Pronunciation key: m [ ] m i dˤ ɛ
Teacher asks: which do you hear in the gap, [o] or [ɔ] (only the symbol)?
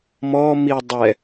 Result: ɔ